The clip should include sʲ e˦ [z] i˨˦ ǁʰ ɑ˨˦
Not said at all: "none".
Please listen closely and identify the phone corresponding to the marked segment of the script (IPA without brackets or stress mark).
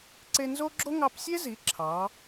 z